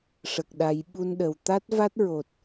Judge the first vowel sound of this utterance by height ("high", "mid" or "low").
mid